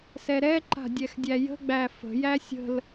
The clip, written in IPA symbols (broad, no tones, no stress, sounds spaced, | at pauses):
s ɛ ɾ ɛ ǃ a̤ dʲ ɛ x dʲ æ j ə̤ ɡ͡b æ f ə̤ j æ sʲ ə̤ l